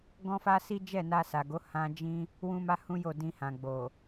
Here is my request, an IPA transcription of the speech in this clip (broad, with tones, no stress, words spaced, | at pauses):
ɡɔ̃˦fa˦si˦ d͡ʒɛ˦˨na˧sa˨ɡo˨˦ hã˧ d͡ʒĩ˦ | wũ˦ma˦hũ˦jo˦˨ dĩ˧hã˨ ɡ͡bo˨